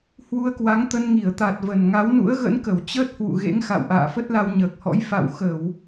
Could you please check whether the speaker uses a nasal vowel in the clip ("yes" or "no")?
no